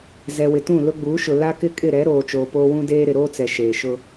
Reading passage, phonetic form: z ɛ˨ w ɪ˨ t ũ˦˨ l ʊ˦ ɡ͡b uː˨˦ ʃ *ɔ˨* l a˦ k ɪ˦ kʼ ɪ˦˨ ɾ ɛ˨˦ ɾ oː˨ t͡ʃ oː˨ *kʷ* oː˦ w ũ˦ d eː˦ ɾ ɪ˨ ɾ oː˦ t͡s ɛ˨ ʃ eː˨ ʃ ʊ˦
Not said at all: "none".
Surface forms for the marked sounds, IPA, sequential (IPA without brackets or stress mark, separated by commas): ʊ˨, p